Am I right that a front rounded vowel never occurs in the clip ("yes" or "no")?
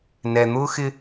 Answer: yes